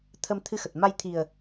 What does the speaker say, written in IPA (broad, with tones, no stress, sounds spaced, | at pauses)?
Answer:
t̪ʰ ə˧ m t̪ʰ ɨ˧ x ə˨˩ t̚ m a˧ j t̪ʰ i˨˩ ə̯